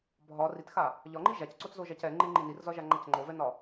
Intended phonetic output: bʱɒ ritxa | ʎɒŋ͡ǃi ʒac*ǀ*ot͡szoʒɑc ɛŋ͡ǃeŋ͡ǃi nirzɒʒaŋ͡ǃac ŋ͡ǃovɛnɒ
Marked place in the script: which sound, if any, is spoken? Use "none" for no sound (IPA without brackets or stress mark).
ǀ